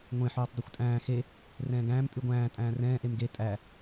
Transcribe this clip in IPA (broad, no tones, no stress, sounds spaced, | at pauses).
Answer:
ŋʷ ẽ ħ ʉː tˤ dˤ ʉ xʷ tʼ æ̃ː x e | r ɛ̃ː ɡ æ̃ː m pʼ y ɡʷ æ̃ː tʼ æ̃ː r ɛ̃ː ʔ e m ɡ e tʼ æ